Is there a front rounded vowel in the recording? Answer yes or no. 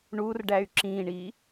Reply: yes